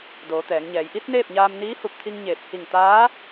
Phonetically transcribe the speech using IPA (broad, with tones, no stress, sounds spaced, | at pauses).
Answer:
d oː˩˧ t̪ ɛː˩˧ ŋ ɲ ɛː˩˧ j ʔ i˧˥ t̚ n eː˥˨ p̚ ɲ aː˧ m n iː˧˥ h u˧˩ p̚ t̪ʰ i˧ ŋ ɲ eː˧˩ p̚ h i˧˩ ŋ t̪ aː˧˥